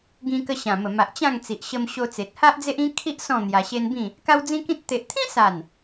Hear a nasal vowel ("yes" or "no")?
yes